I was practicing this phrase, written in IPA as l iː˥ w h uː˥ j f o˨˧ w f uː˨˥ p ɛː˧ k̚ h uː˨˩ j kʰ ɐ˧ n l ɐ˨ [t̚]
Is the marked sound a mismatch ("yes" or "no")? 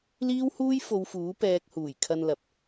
yes